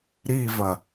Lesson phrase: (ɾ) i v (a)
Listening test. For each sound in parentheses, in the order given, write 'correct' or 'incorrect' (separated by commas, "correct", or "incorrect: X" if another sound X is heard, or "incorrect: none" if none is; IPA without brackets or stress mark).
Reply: correct, incorrect: ɐ